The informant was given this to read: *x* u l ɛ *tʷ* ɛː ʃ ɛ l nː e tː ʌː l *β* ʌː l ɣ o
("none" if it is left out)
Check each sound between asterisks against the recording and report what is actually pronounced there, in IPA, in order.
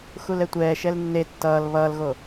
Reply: x, tʷ, β

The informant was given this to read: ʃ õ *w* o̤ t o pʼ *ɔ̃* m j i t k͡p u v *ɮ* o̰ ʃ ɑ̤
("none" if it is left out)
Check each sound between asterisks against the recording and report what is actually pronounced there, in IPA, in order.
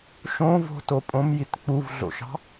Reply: v, õ, ɮ

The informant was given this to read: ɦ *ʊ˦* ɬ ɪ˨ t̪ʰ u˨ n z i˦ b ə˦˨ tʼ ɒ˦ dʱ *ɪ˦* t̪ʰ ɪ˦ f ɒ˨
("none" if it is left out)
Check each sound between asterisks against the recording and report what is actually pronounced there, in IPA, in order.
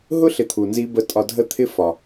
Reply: ʊ˦, ə˦

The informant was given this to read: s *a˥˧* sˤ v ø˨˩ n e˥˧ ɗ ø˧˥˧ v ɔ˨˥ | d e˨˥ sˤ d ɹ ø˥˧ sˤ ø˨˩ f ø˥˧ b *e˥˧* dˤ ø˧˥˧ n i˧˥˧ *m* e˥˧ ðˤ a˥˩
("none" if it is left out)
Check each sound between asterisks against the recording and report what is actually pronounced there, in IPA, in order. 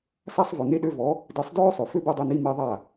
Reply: a˥˧, e˥˧, m

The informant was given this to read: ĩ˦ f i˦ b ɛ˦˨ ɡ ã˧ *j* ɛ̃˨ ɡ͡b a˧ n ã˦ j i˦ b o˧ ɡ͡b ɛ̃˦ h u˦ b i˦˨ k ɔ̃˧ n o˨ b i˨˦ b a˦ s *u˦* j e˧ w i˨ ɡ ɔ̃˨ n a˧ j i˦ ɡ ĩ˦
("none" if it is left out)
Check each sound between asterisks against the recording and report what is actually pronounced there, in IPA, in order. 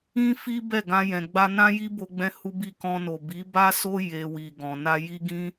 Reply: j, o˦

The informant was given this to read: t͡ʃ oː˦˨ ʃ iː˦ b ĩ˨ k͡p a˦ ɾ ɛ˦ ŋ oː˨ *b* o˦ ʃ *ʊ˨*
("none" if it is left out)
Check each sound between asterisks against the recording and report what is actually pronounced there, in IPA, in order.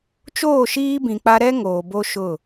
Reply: b, ʊ˦˨

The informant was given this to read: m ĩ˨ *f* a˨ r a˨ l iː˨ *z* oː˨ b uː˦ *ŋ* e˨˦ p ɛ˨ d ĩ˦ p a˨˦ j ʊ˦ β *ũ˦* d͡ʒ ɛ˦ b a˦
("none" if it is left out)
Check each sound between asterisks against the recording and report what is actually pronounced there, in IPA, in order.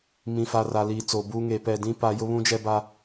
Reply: f, t͡s, ŋ, ũ˦

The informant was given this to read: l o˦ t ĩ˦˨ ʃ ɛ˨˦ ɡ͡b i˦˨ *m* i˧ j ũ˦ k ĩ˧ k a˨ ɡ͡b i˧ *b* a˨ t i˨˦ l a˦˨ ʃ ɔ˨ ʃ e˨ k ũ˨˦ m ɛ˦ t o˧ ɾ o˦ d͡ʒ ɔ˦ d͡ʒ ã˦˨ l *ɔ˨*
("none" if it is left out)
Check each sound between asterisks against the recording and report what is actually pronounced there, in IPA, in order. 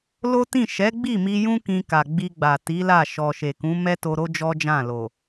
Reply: m, ɡ͡b, o˨

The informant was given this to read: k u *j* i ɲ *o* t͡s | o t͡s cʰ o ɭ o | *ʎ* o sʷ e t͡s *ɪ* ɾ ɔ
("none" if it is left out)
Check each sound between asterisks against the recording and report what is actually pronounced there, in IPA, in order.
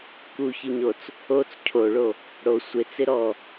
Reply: ç, o, ɽ, ɪ

